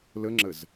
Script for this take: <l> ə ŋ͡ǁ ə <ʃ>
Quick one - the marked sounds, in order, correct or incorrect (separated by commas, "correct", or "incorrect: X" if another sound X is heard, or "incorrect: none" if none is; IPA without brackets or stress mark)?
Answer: correct, incorrect: z